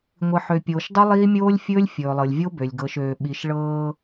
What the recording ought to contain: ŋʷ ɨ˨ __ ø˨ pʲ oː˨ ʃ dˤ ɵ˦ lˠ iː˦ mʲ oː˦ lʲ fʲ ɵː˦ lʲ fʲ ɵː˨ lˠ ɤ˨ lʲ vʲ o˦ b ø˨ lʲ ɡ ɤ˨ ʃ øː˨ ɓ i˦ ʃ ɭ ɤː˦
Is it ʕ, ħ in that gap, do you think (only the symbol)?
ħ